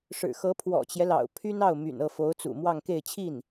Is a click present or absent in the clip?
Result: absent